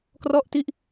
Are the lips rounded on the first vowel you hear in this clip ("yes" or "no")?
yes